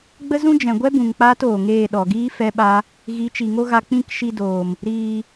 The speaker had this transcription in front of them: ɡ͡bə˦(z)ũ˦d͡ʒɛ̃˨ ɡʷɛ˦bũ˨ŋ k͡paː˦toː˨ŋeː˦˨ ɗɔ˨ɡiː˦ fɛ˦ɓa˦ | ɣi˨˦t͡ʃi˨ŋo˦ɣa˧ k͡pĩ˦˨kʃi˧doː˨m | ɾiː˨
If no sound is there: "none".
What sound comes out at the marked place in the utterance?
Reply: z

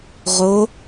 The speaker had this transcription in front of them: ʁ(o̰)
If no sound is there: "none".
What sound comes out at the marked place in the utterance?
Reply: o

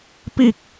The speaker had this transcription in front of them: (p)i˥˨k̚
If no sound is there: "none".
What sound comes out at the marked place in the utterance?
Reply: p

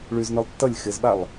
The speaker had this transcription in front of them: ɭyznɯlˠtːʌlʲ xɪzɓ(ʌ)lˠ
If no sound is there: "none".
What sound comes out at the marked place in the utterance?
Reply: a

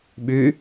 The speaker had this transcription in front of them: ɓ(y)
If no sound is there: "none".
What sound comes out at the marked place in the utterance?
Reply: y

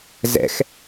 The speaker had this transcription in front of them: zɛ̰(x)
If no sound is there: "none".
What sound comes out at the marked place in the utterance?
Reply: x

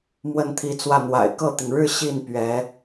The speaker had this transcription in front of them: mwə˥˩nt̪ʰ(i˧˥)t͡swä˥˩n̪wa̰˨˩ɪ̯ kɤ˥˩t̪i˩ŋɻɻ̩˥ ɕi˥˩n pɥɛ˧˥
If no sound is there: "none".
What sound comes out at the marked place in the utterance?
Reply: i˧˥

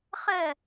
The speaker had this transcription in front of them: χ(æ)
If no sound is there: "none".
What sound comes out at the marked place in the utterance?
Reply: ɛ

